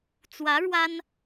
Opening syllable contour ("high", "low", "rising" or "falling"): rising